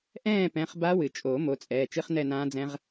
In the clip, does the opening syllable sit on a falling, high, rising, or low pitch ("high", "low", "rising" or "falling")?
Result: falling